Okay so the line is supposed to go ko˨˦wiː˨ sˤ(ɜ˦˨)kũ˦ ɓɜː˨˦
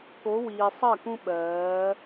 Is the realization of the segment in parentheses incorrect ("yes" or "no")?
no